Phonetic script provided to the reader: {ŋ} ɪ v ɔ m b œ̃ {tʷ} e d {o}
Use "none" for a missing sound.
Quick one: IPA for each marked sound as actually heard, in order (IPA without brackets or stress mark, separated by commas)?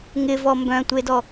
ŋ, tʷ, ɔ